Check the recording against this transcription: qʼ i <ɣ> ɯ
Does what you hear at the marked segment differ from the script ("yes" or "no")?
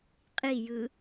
yes